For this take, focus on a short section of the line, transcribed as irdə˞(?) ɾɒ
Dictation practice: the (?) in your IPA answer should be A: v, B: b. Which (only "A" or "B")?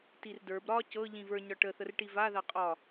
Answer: B